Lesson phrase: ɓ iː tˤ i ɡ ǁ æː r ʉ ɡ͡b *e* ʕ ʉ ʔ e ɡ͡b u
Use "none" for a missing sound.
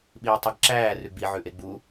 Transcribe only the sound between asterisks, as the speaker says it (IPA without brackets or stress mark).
i